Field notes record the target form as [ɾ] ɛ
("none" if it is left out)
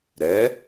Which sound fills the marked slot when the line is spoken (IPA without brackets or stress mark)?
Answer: ɾ